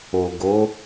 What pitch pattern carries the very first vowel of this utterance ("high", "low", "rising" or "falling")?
low